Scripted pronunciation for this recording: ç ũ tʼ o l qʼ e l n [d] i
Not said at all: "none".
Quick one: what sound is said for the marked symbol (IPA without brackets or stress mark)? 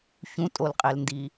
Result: d